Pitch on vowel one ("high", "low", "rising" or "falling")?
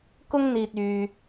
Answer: high